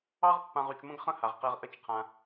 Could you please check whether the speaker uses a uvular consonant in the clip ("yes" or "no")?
yes